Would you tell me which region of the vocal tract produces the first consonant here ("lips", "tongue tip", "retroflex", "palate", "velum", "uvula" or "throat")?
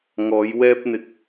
velum